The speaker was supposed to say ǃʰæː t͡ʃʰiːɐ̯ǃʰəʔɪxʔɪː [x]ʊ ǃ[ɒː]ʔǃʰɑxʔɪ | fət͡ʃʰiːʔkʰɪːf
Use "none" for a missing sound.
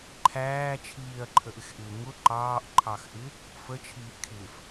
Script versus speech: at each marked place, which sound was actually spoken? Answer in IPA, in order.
ŋ, ɑː

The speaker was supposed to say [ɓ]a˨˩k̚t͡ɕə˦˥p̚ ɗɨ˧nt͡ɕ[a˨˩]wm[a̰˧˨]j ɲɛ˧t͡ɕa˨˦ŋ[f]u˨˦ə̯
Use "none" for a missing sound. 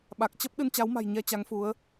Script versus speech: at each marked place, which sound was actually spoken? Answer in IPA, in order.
ɓ, a˨˦, a̤˨˩, f

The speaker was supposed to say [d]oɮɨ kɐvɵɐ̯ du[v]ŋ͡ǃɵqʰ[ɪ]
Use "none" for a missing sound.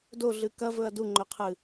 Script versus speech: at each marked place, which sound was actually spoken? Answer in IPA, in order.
d, none, ɨ

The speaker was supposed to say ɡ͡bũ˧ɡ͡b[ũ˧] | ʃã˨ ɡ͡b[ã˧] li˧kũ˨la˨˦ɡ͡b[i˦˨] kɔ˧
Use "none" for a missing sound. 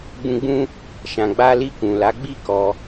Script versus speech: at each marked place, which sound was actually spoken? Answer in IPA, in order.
ũ˦, a˧, i˦˨

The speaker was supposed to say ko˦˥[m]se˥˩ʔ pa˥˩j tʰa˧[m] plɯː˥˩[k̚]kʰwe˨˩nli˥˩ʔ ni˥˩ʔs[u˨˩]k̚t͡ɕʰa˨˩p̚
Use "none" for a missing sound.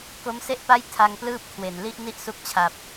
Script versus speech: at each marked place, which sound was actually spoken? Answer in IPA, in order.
m, ŋ, p̚, u˦˥

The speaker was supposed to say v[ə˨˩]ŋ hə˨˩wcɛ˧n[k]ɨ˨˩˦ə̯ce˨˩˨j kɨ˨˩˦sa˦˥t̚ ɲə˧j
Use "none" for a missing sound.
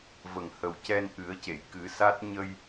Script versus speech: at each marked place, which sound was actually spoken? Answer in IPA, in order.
ə˨˩, ʔ

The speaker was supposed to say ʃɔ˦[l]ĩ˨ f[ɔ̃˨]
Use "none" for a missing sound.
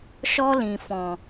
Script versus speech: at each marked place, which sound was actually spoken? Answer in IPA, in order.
l, ɔ̃˨

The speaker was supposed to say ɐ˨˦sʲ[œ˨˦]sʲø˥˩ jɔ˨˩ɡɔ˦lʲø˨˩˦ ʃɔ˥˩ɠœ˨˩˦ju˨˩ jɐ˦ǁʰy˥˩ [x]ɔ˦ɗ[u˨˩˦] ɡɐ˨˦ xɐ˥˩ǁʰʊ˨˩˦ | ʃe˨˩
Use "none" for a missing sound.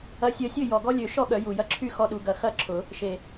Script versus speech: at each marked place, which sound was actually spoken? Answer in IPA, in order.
œ˨˦, x, u˨˦

